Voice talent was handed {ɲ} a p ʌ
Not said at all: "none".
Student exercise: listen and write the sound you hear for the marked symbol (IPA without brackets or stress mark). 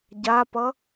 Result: ɟ